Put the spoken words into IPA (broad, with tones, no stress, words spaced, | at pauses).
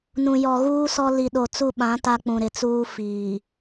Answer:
nũ˨jɔ˨ɣuː˦ sɔ˦ li˨ɗo˨t͡su˦˨ɓã˨˦ ta˦k͡pũ˨ɾɪ˨t͡suː˦ fiː˨